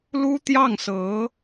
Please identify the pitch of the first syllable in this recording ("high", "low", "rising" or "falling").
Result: high